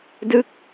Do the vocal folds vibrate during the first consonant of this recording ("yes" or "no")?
yes